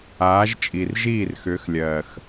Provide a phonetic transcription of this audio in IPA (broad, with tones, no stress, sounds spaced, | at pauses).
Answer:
aː˨˦ ʒ t͡ʃʼ i˨ r ʒ iː˦˨ r x ʏː˨˦ x lʲ ɜː˨ x